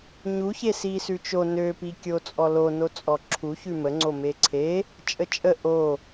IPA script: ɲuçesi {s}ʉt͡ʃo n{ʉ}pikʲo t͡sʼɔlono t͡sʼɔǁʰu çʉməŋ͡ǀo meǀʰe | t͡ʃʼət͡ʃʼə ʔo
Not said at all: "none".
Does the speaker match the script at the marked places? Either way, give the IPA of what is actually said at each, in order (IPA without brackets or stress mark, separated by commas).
s, ø